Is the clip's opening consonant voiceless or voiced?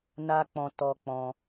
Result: voiced